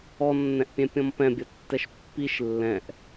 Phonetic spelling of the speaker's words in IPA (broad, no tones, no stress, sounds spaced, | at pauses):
ɔ nː ɛ̃ ʔ pʲ ɛ̃ pʲ ɔ̃ m p ɛ̃ bʲ ʌ tː ɛ ʃ pː i ʃ lː ɛ̃ ʔ